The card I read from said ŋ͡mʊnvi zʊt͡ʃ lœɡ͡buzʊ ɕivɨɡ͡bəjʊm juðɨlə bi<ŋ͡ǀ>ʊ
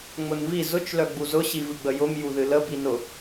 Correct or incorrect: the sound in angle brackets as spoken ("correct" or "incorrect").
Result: incorrect